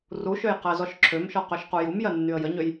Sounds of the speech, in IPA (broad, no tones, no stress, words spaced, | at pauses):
ruʃøj qɜzɔʃǁʰømʃɔ qøʃqujumjɜ nːyə̯jəɲøj